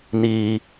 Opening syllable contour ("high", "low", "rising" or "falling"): low